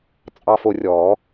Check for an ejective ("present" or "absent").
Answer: present